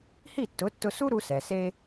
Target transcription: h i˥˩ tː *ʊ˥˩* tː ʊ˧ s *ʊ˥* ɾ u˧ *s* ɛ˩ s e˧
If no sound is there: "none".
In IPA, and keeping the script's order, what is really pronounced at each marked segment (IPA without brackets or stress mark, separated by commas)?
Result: ʊ˩˥, u˥, s